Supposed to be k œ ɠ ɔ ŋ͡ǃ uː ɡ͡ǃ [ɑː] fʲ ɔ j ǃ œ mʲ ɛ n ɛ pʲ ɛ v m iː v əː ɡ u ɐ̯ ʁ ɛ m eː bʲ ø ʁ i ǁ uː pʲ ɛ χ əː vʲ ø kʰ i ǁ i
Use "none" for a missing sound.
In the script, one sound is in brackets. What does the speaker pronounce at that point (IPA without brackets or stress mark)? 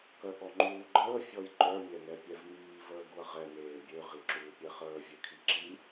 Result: əː